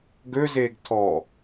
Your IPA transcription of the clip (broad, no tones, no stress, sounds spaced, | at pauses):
ɡ ø z eː ɡ tʰ ɔ